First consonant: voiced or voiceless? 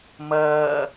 voiced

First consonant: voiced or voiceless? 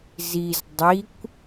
voiced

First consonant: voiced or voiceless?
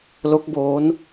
voiced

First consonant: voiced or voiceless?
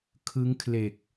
voiceless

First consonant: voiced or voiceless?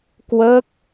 voiceless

